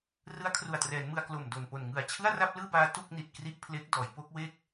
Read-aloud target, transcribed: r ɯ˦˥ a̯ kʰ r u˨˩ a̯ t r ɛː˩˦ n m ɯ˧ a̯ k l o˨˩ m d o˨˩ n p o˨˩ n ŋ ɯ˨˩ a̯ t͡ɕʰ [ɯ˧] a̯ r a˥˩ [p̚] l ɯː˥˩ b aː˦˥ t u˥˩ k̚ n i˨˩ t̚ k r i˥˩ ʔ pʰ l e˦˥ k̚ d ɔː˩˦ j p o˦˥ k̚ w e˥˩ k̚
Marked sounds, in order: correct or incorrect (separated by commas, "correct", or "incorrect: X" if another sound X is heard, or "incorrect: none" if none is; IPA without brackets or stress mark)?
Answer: incorrect: ɯ˥˩, correct